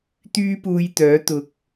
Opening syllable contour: high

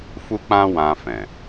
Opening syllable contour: high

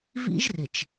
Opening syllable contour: high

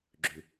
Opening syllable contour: low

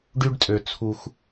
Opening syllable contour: high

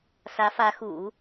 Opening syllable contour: rising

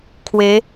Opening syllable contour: rising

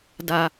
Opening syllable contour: high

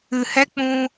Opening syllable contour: low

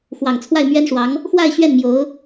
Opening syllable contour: low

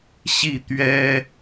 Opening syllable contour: falling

